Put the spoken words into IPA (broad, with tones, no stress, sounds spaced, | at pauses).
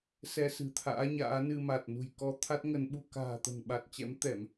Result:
s ɛ˧ s ɨ̤˨˩ t̪ʰ a̰ː˧˥ ɲ a̰ː˧˥ n ɨ˧ m a˨˩ t̚ n ṳ˨˩ j k ɔ˧ t̪ʰ a˦˥ t̚ ŋ ə˨˦ n ɓ u˧ k a̤ː˨˩ t̪ ə̤˨˩ n ɓ a˨˩ t̚ t͡ɕ ɛ̰˧˥ m t̪ ɛ˧˩˨ m